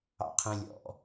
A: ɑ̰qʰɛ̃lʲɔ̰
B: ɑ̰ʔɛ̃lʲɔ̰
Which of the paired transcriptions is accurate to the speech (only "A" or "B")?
A